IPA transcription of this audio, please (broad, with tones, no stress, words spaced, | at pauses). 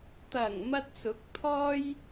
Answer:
t̪ɐ˨˩ŋ mɐ˧t̚sʊ˨˥k̚ t̪ʰɔː˥j